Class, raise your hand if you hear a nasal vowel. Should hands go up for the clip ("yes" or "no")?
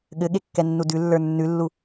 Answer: no